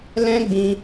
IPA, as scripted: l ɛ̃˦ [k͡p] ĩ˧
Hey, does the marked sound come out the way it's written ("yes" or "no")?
no